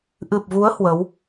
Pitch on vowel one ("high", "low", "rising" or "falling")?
low